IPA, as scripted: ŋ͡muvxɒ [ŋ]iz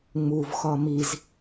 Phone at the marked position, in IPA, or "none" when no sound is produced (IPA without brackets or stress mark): m